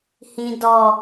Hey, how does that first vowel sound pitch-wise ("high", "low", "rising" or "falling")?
low